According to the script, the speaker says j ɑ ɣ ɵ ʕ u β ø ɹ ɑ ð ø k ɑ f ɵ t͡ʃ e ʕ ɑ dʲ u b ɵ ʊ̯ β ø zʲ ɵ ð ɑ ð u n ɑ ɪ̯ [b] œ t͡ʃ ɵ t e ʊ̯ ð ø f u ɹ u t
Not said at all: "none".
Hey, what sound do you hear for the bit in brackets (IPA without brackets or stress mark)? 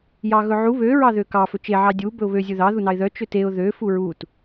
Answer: ð